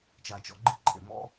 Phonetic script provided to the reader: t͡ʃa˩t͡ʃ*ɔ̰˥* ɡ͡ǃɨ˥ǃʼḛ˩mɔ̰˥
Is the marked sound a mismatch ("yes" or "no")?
yes